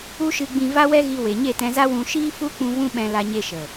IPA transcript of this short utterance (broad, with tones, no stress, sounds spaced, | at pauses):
u˦ ʃ ɨ˧ ɡ͡b ĩ˧ v a˦ w ɛ˦ ɣ i˧ w e˨ ɲ e˦˨ t ɛ̃˧ z a˦ w ũ˧ ʃ iː˦ f u˦ k͡p ũ˧ v ũ˦ ɓ ɛ̃˧ l a˧ ɲ e˧ ʃ ə˨